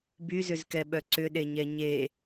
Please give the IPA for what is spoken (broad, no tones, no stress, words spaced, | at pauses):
byzʏzkɛɓœ ǀʏɗeɲɛ ɲe